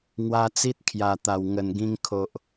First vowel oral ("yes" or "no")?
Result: yes